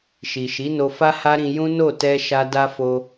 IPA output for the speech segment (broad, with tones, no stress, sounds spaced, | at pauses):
ʃ i˨ ʃ i˨˦ n o˧ f a˦ h a˦ ɾ ĩ˧ j ũ˦ n o˦˨ t ɛ˧ ʃ a˧ d a˦ f o˧